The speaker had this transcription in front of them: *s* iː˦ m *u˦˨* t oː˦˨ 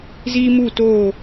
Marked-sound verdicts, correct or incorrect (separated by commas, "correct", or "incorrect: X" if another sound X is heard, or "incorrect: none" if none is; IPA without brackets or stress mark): incorrect: z, correct